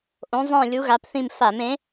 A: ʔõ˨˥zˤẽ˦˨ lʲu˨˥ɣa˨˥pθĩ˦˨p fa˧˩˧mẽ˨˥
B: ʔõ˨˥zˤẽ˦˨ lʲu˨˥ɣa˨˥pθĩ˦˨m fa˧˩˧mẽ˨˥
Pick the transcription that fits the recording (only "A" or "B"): B